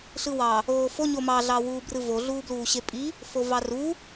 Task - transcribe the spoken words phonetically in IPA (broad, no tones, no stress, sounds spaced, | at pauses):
ɬ ɯ w ɑ | oː f o ɲ o m ɑ ɮ ɑ w uː b r ɯ v o ɮ uː b l uː ɕ e pʼ i | f o v ɑ r u